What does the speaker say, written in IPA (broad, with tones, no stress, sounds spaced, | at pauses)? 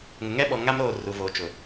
ŋ ʊ˨ ŋ ɛ˦ ɓ ɔ˨ ŋ a˦ m ɾ oː˦˨ r u˨ v oː˨ t͡ʃ ʊ˨